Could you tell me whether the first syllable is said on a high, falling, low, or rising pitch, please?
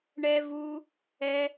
high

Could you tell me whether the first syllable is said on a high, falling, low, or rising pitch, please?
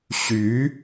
rising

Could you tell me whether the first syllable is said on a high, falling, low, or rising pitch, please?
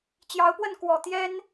rising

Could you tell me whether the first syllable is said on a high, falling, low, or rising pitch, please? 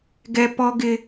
high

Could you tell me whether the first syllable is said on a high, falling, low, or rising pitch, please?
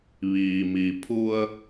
low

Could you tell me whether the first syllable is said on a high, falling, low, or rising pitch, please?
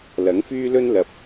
rising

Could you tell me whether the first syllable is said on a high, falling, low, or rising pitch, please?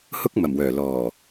high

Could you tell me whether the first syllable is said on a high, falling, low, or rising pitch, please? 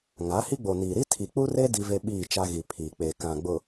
rising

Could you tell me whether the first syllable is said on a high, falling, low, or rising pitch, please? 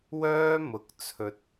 high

